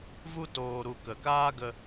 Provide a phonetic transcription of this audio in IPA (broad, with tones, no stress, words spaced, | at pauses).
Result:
vu˧toː˨ɾu˨ kə˨kaː˦ɡə˧